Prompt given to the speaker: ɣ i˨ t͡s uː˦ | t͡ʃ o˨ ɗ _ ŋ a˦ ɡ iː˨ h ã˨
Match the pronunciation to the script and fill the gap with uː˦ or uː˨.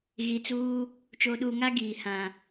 uː˨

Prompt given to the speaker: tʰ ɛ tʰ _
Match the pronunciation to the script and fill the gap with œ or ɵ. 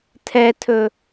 ɵ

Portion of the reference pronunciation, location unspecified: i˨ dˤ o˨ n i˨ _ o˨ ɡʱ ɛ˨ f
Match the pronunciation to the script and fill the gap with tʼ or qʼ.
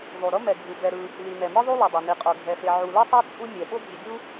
qʼ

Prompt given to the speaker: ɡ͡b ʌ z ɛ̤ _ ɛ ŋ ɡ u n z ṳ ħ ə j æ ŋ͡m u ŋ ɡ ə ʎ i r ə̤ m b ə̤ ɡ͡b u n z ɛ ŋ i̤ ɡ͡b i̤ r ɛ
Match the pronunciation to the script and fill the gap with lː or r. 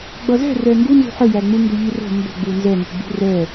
r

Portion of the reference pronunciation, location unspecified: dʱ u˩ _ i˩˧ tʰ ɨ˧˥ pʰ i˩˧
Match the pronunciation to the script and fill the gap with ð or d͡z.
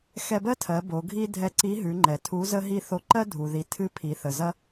ð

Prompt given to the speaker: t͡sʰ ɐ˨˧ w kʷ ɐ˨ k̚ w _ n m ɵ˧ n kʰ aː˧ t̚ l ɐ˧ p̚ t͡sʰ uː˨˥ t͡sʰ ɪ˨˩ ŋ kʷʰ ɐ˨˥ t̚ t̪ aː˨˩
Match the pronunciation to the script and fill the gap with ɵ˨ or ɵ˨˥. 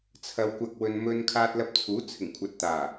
ɵ˨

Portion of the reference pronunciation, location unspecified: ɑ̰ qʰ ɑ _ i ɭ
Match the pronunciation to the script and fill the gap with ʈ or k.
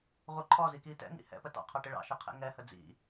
ʈ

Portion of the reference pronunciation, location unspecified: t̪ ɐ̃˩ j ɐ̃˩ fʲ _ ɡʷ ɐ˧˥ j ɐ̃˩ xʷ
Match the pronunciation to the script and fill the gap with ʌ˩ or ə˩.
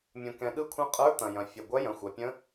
ə˩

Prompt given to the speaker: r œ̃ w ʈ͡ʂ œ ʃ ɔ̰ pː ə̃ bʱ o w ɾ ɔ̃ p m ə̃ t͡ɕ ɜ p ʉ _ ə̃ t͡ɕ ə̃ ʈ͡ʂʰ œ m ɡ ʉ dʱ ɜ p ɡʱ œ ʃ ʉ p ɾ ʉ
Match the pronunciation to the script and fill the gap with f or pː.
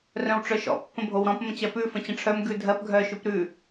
f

